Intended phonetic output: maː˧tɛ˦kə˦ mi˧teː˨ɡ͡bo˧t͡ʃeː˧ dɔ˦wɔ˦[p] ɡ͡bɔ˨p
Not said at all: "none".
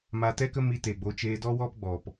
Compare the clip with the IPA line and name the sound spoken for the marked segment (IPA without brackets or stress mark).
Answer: p